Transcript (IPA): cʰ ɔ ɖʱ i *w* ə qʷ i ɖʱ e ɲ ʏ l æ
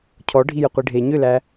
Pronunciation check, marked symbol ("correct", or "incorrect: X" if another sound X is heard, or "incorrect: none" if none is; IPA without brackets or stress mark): incorrect: j